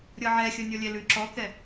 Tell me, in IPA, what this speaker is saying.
ɾʲ ɤ ʕ ɛ xʲ ɤ nʲ ɔ lʲ ɛ l ʉ ǁ ɔ k ɛ

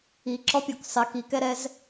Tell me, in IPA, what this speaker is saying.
i ǁ ɔ pʲ o k sˤ ɪ k i k ɛ ɾ ɛ z

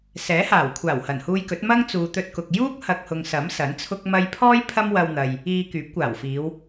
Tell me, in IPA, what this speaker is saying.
s ɛː˨˥ h aː˨˩ w kʷʰ aː˨˩ w h ɐ˨˩ n h uː˧ j k ɵ˨˥ t̚ m ɐ˥ ŋ t͡s uː˨ t̪ ɵ˧ t̚ k ʊ˨ k̚ j uː˥ k̚ h ɐ˨ k̚ h ʊ˨ ŋ s ɐ˨˥ m s ɐ˨˥ n t͡sʰ ʊ˥ k̚ m ɐ˥ j pʰ ɔː˥ j pʰ ɐ˥ m w ɐ˧ w n̪ ɐ˨ j | iː˧ k yː˨˥ p̚ kʷ aː˨˩ w f iː˨˧ w

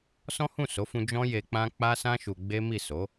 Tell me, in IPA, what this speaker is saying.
s ɔ̃˦ h ũ˦˨ s o˨˦ f ũ˧ d͡ʒ ɔ̃˦ j e˧ k͡p ã˦ k͡p a˦ s ã˦ ʃ u˧ ɡ͡b e˦ m i˦˨ s o˨˦

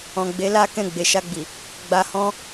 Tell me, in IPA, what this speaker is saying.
ɔ̃˨ ɡ͡b e˨˦ l a˦ k ɛ̃˧ ɡ͡b e˨ ʃ a˧ ɡ͡b i˨ | ɡ͡b a˨ h ɔ̃˧

